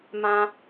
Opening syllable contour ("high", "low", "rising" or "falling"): high